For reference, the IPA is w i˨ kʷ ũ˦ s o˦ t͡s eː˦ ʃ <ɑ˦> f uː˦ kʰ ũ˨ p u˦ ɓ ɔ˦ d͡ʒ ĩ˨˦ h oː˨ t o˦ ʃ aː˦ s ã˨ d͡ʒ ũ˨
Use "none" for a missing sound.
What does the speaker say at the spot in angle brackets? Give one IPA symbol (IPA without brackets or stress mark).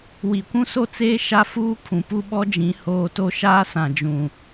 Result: a˦